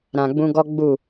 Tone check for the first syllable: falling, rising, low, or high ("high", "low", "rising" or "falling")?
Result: low